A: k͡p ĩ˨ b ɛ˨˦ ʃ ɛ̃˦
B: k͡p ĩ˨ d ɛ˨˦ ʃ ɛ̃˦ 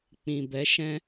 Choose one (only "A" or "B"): A